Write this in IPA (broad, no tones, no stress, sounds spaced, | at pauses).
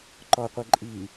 ǃ ɔ qʷ e ǃʼ i